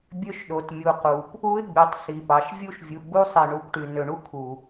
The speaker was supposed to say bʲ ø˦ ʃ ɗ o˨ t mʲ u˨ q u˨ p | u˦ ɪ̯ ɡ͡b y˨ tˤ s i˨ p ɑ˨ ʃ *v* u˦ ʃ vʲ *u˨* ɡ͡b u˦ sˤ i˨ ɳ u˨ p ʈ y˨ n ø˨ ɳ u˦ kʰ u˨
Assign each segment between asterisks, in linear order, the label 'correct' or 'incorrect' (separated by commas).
incorrect, correct